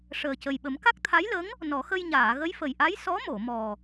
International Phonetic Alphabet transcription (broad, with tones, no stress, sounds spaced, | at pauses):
ʂ əː˨˩ c ə˨˩ j ɓ ə˨˩˦ m k a˦˥ k̚ t̪ʰ a˧˥ j l ə˧˥ ŋ | n ɔ˨˩˦ x ə˧ j ɲ aː˨˩˨ ɣ ə˧˥ j f ə˨˩ j ʔ a˧˥ j s ɔ˧˥ m o˨˩˨ m ɔ˨˩